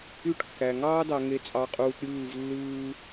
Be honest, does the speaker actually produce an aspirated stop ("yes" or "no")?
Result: no